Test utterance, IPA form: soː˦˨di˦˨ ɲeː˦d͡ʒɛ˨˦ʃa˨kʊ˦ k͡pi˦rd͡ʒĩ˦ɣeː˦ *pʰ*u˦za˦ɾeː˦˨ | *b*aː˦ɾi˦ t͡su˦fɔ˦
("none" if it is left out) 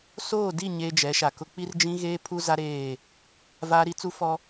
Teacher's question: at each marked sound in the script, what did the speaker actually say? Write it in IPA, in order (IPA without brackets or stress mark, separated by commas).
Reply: pʰ, v